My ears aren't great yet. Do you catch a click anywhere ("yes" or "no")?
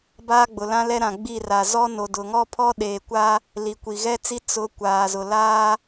no